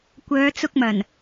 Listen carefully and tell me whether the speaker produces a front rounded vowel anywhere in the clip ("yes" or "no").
yes